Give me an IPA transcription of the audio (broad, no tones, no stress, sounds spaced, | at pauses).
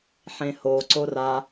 ħ ẽ h o ǀ o r a